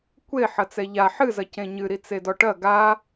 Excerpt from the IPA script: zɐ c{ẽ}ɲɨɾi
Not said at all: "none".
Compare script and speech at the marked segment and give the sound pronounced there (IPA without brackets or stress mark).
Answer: ẽ